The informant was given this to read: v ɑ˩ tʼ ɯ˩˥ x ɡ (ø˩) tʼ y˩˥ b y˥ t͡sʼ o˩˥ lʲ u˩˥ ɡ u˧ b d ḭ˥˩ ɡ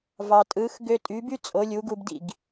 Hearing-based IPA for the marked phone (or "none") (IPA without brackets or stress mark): ø˧